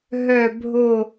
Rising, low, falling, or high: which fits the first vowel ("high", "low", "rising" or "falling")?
falling